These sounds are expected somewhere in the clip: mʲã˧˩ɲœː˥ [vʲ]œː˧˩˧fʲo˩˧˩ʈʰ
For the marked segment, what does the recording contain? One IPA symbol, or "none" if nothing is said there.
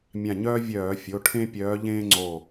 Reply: vʲ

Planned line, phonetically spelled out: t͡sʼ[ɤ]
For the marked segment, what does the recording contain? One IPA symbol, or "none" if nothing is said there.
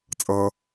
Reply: ɤ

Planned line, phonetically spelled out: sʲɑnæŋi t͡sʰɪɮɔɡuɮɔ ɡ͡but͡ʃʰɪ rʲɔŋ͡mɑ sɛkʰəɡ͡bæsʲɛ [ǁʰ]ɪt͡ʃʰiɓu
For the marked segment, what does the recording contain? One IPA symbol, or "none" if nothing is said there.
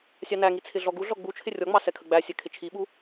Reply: kʰ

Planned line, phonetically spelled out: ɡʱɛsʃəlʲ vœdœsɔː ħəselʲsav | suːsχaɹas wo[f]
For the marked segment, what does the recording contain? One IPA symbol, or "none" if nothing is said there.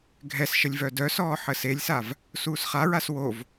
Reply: v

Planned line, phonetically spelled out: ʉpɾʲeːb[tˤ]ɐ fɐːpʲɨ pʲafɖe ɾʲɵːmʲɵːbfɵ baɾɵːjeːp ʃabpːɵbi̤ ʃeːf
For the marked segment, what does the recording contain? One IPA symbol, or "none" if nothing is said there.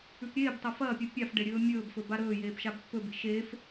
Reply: tˤ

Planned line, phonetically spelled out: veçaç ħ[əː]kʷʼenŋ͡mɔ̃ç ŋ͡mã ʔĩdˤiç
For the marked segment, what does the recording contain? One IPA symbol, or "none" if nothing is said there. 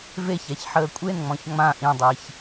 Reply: əː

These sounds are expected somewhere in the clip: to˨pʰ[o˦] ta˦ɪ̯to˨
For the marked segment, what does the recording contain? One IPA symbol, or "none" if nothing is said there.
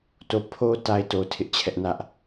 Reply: o˦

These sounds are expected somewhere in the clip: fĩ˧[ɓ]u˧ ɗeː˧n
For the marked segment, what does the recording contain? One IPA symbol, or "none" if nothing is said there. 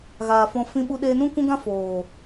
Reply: ɓ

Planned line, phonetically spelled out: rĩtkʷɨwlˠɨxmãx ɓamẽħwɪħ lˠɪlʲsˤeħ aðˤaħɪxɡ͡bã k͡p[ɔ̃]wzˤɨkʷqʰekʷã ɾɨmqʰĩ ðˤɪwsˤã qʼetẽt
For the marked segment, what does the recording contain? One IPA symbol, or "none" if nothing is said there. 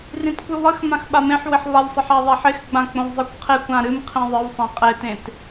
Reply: õ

